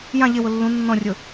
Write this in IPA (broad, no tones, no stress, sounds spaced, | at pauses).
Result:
j ã ʎ ɪ w ʊ lː ũ nː ɔ̃ rʲ ʊ